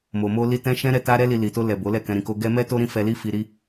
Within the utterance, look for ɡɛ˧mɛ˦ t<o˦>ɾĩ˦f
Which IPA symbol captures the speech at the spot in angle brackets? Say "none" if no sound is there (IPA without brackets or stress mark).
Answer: o˦